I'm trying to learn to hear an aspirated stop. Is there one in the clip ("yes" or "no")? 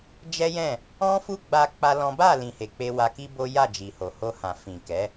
no